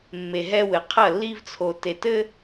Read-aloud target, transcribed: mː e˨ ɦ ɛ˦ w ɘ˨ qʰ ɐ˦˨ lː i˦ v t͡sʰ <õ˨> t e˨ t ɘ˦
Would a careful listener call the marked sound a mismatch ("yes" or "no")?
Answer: yes